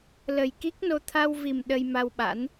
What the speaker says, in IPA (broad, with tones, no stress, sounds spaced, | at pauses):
l ə˨˩ j k i˦˥ k̚ n o˧ t̪ʰ a˧ w v i˨˩ m ɗ ə˧ j m a˧ w ɓ a̰˧˥ n